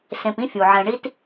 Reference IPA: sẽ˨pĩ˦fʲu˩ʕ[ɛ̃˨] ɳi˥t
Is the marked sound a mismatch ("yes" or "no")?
no